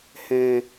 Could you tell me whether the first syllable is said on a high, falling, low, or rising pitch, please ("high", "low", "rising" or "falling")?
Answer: low